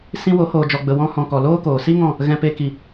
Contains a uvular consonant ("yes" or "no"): no